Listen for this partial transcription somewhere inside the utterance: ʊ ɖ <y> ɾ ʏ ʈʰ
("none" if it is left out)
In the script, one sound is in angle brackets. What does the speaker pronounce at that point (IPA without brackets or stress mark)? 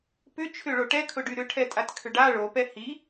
y